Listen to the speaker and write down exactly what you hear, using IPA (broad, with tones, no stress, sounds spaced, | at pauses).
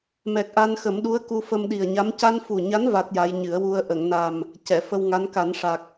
m ɛ˨˩ k̚ ʔ a˧ n x ə˨˩˦ m ɗ u˧˥ ə̯ k u˧ f ə˧ m ɗ i˨˩ ə̯ ɲ a˧˥ m c a˧ n f u˨˩ ɲ a˧˥ n v a˦˥ t̚ j a˧˥ j ɲ ɨ˨˩˦ ə̯ w u˧ ə̯ ʔ ə˨˩˨ ŋ n a˨˩ m | c ɛ˨˩˨ f ə˧ w ŋ a˧˥ n k a˨˩˦ n ʂ a˨˩ k̚